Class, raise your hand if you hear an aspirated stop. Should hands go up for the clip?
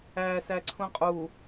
yes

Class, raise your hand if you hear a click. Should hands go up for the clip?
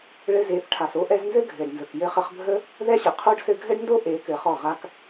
no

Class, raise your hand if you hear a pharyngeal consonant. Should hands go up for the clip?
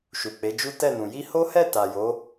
no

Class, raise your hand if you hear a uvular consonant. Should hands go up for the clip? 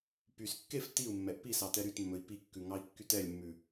no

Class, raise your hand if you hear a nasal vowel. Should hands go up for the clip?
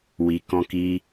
yes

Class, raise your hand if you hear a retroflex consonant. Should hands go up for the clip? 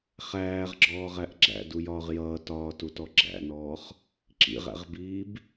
no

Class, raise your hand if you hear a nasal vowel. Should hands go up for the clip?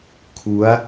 no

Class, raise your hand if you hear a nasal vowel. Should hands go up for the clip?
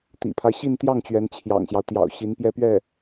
no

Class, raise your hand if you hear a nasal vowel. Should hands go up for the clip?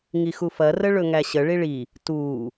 no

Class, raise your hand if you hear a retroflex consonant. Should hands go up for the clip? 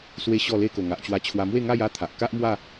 no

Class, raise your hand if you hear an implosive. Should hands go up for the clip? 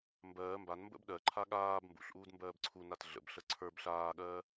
yes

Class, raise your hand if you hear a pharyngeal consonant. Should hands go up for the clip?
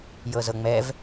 no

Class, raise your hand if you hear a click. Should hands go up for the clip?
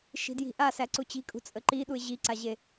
yes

